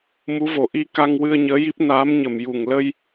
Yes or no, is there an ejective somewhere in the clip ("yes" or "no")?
no